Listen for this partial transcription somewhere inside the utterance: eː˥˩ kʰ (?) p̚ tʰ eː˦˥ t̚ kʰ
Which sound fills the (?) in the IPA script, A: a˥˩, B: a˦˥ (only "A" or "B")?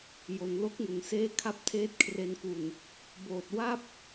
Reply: A